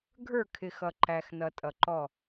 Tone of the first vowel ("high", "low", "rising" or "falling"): falling